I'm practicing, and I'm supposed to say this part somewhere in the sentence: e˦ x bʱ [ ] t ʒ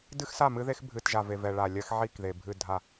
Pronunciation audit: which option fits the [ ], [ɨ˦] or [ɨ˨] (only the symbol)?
ɨ˨